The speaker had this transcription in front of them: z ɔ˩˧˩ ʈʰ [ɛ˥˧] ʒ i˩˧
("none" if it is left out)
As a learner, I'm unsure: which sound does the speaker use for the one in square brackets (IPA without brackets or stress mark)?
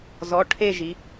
e˥˧